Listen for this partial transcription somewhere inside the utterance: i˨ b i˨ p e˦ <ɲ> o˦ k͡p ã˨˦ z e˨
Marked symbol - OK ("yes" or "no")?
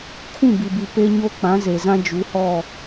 yes